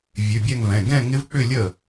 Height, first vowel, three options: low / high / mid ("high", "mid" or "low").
high